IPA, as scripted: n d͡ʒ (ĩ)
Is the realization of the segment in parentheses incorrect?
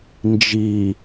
yes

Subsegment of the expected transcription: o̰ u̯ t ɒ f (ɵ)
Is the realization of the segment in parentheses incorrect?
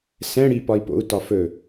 no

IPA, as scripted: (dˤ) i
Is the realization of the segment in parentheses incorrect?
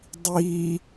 no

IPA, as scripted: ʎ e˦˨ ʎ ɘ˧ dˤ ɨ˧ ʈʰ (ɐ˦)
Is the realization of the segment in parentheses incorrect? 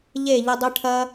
no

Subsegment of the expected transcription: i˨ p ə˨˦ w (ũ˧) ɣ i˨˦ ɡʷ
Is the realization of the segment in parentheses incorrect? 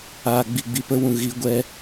yes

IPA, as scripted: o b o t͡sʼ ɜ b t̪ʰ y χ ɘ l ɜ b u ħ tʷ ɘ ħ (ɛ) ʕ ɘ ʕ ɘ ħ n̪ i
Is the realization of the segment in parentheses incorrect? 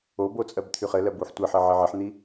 yes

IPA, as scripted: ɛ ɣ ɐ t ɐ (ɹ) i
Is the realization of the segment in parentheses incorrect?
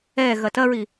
no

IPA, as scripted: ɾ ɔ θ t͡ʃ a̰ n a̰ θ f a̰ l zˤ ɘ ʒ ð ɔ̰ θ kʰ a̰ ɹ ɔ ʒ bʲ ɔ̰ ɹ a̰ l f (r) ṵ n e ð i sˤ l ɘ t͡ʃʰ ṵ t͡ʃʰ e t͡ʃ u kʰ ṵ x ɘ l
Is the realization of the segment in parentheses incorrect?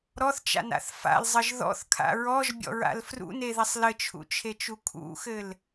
no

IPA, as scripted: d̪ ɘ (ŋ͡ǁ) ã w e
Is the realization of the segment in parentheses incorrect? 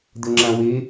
no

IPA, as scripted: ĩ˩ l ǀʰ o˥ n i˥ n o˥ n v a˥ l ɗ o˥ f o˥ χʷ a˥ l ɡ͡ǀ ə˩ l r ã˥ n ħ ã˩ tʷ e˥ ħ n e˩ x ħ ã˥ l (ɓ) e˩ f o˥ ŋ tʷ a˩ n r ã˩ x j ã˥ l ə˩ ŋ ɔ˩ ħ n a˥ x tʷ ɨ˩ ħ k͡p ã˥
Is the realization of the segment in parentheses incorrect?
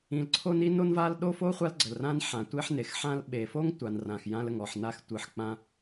no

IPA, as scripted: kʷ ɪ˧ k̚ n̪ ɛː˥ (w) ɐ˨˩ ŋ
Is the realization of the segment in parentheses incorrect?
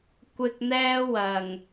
no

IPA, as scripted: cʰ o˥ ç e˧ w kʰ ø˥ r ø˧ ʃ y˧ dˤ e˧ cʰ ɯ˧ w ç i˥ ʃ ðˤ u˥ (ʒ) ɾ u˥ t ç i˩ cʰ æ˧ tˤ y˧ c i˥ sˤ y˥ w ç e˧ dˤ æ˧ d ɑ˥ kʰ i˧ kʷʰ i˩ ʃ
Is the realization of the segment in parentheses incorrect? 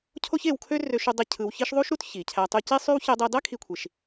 yes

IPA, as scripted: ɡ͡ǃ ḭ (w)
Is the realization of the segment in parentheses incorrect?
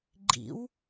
no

